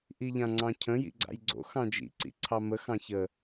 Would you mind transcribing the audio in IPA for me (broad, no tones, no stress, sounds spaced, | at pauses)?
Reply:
ʔ i ʎ ã ŋ͡ǀ ɑ̃ cʰ ə̃ j ḭ ɡ͡ǀ a̰ j ɡ͡ǀ o̰ x ɑ̃ d͡ʒ ḭ ǀ ḭ ǀʰ ɑ m ə x ɑ̃ ç ə